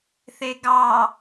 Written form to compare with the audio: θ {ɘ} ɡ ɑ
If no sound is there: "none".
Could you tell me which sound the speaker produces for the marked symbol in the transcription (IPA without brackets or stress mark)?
e